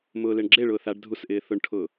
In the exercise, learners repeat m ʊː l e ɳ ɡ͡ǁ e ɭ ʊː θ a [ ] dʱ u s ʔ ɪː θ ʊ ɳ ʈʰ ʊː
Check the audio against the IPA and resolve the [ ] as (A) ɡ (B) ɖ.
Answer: B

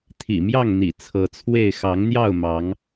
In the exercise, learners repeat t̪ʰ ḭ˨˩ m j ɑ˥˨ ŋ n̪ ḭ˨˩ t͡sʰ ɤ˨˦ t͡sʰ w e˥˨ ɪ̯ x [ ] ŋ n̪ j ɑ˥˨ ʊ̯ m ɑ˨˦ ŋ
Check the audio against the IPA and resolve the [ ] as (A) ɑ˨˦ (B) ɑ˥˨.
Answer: A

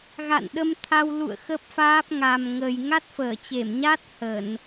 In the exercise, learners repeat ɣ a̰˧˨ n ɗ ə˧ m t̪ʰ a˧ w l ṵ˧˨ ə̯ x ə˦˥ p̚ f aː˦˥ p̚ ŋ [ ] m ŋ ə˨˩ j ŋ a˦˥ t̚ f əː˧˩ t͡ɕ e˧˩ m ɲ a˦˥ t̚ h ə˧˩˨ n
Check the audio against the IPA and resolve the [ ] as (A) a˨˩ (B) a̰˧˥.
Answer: A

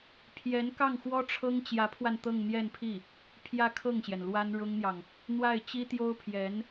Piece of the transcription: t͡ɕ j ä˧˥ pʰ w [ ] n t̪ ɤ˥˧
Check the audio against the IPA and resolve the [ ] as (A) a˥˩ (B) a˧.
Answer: B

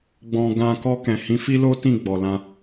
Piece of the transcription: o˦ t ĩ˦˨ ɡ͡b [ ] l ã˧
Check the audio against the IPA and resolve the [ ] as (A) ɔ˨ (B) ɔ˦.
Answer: A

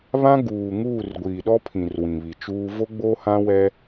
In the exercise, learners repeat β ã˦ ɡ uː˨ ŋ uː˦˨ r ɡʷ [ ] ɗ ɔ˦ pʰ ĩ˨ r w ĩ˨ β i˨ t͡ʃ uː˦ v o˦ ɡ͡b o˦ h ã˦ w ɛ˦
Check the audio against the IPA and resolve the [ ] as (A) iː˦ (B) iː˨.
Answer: B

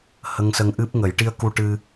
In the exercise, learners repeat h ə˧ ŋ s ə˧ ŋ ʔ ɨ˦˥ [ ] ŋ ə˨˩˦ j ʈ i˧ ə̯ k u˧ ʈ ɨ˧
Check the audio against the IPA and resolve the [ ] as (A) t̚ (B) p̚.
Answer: B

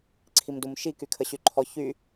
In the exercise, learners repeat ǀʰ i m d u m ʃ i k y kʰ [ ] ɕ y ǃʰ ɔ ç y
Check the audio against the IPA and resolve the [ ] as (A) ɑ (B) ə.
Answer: B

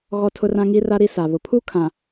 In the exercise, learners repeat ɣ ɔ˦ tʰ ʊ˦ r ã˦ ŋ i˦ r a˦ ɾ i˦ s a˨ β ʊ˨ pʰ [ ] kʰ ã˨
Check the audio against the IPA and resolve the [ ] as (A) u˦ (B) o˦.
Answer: A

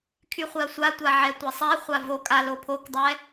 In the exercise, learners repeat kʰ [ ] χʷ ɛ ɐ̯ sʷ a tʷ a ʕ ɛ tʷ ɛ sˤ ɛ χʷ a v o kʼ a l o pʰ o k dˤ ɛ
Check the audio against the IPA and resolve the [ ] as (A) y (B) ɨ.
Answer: A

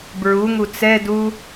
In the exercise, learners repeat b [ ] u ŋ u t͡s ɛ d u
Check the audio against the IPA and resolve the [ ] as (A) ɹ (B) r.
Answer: A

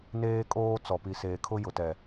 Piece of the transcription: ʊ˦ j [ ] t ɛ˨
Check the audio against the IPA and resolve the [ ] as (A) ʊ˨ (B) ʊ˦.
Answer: A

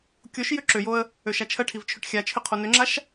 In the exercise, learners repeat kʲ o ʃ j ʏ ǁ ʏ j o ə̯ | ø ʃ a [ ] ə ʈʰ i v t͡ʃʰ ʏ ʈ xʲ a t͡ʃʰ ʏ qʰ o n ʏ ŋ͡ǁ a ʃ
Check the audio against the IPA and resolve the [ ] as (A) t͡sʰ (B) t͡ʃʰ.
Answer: B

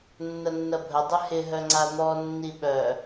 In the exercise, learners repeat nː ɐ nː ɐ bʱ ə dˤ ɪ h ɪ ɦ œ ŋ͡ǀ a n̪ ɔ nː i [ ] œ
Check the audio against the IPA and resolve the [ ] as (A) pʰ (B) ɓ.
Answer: B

